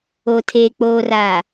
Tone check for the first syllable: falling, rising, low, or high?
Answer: low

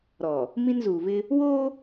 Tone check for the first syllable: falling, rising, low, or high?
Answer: low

